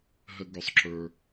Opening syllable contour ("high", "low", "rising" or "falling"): high